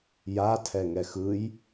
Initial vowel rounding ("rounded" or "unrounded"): unrounded